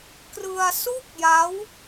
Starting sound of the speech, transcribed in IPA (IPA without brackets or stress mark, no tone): k